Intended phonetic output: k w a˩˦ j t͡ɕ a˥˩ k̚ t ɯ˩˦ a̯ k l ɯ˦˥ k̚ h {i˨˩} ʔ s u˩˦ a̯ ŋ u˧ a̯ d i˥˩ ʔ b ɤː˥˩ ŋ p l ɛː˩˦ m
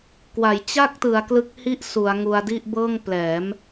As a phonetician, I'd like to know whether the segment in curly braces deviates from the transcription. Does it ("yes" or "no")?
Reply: yes